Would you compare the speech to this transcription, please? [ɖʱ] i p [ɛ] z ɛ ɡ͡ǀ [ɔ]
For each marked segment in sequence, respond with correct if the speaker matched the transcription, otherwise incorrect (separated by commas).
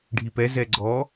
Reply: correct, correct, correct